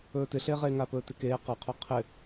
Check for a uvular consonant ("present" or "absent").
present